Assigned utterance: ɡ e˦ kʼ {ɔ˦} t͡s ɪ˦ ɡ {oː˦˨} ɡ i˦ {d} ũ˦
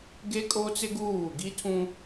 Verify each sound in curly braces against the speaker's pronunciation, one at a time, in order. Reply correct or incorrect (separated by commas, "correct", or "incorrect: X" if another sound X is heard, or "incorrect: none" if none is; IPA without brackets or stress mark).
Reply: incorrect: o˦, incorrect: uː˦˨, incorrect: tʰ